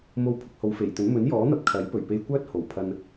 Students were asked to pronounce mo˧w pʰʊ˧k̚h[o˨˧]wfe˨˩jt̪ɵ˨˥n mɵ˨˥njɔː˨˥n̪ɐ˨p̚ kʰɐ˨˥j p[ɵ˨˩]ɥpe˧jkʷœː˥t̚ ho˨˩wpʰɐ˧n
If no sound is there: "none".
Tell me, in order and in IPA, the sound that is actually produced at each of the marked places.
o˨˧, ɵ˨˩

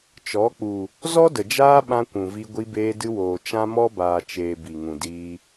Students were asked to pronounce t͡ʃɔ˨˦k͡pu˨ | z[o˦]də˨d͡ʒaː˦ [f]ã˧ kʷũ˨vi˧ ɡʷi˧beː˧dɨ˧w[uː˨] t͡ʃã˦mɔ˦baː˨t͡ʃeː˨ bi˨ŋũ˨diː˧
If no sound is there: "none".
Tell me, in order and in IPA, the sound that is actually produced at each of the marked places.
ɔ˦, ɓ, oː˨

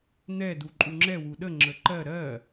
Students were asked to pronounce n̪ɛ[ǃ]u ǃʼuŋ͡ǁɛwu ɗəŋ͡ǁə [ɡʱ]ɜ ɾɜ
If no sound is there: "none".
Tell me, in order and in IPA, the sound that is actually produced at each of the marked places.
d, ǃ

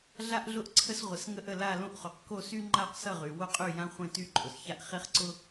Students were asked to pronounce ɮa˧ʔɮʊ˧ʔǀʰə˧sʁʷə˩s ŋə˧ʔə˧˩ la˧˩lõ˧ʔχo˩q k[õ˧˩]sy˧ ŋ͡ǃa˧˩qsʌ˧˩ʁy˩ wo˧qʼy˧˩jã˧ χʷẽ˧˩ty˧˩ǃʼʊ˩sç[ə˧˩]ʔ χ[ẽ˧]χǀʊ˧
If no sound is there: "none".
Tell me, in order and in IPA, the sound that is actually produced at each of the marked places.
o˧˩, a˧˩, e˧

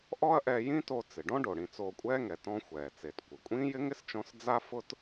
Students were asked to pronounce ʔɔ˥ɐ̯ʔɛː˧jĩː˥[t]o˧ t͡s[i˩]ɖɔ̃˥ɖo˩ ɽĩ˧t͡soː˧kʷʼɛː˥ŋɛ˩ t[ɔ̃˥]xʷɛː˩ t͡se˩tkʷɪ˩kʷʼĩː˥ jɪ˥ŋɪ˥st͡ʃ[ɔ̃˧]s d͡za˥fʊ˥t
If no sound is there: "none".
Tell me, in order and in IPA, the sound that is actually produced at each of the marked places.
t, ɪ˩, ɔ̃˧, ɔ̃˧

